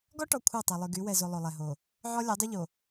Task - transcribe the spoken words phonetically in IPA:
ɡ ɔ˦ ʈ ɔ˨ kʷʰ a˦˨ tˤ a˨ lˠ y˨ ɡ y˨˦ w ɛ˨ z o˨ lˠ o˨ lˠ ɛ˨ ɦ o˨ | ʕ ɔ˦ lʲ a˨˦ dˤ y˦ ʎ o˨

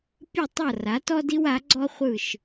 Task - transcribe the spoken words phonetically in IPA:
pʲ ɯ˥˩ tˤ ɤ˥˩ r a˩˥ t ɔ˥ d i˥ w a˩˥ ɡ͡ǀ ɔ˥ χʷ ɯ˥˩ ʃ

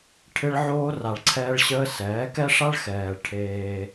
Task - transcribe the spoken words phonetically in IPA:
ʈʰ ɪ˦ ɭ ʕ oː˦ r a˨ ɭ ǀʰ ɛː˦ ɭ ɕ əː˦ s ɛː˨˦ k ɛ˦ ʂ a˦ ɭ x ɛː˨ ɭ ʈʰ eː˦

